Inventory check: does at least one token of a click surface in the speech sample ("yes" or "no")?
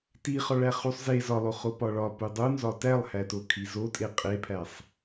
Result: no